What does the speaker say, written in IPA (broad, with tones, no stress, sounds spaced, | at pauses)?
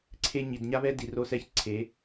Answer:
ǀʰ e˧ ɲ i˨ d ɲ a˦ β ɛ˦ d i˨ r o˧ s ɛ˦˨ ç ǀʰ e˨˦